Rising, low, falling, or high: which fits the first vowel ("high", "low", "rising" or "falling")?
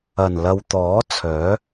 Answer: low